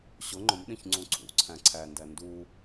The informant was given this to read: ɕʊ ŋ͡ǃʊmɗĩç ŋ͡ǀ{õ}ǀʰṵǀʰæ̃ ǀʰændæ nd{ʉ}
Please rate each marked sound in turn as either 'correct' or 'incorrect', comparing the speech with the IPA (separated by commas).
incorrect, incorrect